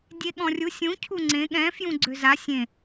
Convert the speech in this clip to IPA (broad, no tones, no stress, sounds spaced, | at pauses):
dʲ e ɠ ɔ̃ rʲ u sʲ ũ cʰ u ŋ͡ǀ ẽ ɠ ɛ̃ f j ũ ɡ͡ǀ ø z a sʲ ẽ